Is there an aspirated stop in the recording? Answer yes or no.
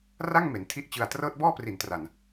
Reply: yes